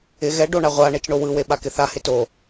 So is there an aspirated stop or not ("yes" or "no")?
no